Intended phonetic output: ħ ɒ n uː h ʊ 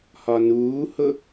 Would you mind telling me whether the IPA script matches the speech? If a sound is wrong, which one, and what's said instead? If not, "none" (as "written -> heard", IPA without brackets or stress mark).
ħ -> h